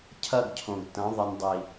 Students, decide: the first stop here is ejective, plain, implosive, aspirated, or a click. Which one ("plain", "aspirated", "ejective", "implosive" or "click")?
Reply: aspirated